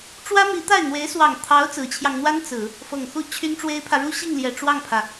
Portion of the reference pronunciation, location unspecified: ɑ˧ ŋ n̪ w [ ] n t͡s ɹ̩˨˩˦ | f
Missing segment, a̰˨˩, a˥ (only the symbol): a˥